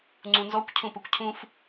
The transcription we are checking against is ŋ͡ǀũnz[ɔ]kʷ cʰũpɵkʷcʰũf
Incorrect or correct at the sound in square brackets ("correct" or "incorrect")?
correct